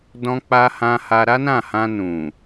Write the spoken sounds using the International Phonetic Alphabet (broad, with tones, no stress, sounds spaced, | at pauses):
d ɔ̃˧ k͡p a˧ h ã˧ h a˧ ɾ a˦ n ã˦˨ h ã˧ n ũ˨